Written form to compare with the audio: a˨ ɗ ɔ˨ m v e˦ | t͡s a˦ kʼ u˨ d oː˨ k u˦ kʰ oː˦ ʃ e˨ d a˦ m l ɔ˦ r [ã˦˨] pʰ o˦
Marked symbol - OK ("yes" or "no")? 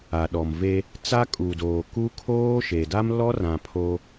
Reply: no